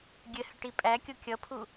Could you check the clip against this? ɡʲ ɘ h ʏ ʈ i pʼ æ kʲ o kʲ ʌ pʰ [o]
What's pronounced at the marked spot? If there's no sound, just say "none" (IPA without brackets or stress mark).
u